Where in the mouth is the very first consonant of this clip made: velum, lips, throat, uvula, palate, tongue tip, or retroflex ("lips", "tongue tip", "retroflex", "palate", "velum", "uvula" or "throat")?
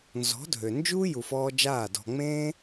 tongue tip